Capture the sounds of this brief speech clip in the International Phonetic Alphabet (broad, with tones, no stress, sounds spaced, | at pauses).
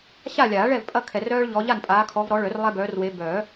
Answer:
ɕ a˥˨ lʲ aː˨˩˦ ɭ ɛ˥˨ v pʼ ɐ˦ kʰ ɛ˨ r œː˦ ɭ ʎ ɔ˨˦ ʎ a˥˨ n pʼ aː˨˦ kʰ ɔ˨˦ v ɾ ɔ˨˦ ɭ œ˨˩˦ r lˠ ɛ˦ b œː˨˦ r w e˨˦ b œː˨˩˦